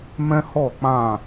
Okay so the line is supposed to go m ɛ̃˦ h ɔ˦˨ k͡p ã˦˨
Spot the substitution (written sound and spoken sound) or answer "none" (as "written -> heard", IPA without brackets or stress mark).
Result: none